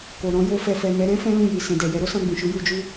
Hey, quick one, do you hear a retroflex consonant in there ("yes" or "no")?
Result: no